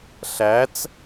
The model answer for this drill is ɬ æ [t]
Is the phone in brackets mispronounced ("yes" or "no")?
yes